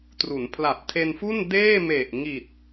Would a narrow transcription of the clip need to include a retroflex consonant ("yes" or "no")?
no